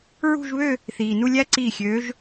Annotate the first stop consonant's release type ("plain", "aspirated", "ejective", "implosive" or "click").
click